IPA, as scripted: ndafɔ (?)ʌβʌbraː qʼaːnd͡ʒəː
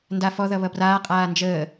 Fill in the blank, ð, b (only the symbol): ð